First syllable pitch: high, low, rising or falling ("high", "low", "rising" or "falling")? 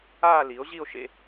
falling